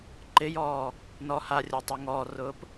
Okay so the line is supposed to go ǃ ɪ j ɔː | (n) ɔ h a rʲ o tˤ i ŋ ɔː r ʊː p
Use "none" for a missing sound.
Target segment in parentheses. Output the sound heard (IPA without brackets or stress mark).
n